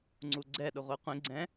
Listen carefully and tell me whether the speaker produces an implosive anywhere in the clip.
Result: yes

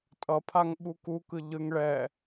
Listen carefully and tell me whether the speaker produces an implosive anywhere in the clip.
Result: yes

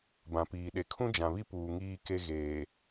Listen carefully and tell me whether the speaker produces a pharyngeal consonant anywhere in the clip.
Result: no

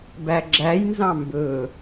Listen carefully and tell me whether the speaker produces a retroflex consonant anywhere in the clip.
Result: no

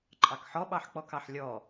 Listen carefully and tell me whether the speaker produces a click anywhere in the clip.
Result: yes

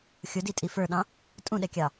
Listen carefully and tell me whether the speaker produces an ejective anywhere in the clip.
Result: yes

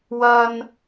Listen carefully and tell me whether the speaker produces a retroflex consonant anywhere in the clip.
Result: no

